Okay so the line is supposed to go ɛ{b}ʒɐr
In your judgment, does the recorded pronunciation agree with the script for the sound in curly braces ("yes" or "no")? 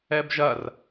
yes